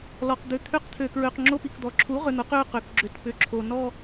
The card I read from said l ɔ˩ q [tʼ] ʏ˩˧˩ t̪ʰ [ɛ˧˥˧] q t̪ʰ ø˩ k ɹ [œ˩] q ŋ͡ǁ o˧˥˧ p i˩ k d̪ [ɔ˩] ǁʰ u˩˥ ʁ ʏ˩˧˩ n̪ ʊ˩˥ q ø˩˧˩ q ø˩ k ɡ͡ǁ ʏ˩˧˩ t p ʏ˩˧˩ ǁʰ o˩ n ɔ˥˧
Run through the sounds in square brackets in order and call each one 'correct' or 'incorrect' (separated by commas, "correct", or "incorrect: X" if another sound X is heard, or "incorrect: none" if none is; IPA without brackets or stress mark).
incorrect: d̪, incorrect: ʏ˧˥˧, incorrect: ø˩, correct